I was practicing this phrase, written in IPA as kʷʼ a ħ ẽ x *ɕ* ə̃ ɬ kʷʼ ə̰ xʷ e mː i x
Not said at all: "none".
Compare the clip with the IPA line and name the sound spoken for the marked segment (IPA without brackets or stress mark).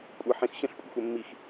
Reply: ɕ